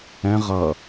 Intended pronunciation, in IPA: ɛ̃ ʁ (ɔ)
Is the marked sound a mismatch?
yes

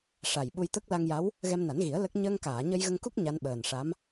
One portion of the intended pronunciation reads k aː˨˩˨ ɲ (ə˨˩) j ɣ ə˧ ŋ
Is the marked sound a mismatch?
yes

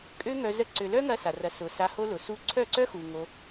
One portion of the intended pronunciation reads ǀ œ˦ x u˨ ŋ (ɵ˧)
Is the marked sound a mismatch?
yes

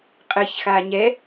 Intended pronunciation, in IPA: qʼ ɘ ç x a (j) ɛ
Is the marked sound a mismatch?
yes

